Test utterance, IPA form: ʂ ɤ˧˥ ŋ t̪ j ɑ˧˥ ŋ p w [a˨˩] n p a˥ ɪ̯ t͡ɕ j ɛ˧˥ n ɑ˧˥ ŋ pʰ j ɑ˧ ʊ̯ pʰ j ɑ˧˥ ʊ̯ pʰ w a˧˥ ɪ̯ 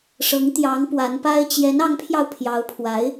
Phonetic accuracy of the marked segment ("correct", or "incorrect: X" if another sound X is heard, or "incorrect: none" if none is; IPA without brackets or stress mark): incorrect: a˧˥